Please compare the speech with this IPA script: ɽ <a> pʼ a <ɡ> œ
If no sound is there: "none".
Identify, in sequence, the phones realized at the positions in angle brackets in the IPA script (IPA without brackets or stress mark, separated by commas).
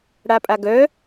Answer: a, ɡ